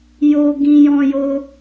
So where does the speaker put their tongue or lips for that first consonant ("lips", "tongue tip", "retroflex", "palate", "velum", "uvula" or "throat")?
palate